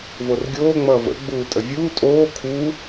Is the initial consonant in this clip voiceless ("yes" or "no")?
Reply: no